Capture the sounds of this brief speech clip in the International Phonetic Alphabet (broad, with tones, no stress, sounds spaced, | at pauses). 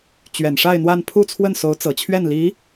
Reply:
t͡ɕ ɥ ɛ˨˩ n ʂ a˥˧ ɪ̯ n̪ w a˥˧ n pʰ u˥˧ t͡sʰ w ə˥˩ n s o˧˥ ʊ̯ t͡s ɤ˨˩ t͡ɕʰ ɥ ɛ˥˩ n l i˧˥